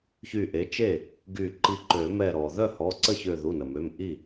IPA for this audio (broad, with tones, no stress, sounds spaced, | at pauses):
ç y˧˩ ʔ e˩˥ t͡ʃ e˥˩ | ɡ y˧˩ ǃ i˧˩ ǃ ø˨˩˦ m ɛ˧˩ ɾ ɔ˩ ð œ˥˩ h ɔ˩˧˩ ǀ ə˥˩ ç ø˧˩ ð u˩˧˩ n ə˩ m ø˩˧˩ m ʔ i˥˩